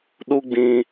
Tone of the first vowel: high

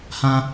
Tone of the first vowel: high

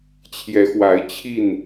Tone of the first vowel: rising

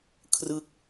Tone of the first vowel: falling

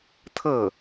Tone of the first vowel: falling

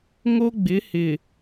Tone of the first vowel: high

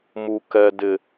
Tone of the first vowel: low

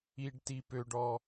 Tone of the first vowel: low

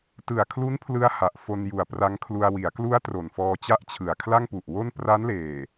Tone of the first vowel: low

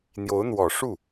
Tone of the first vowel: rising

